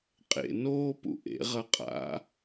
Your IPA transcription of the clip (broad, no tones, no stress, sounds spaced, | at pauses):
qʼ ḛ n oː p ṵ ʔ ḛ ʁ ɐ qʼ a̰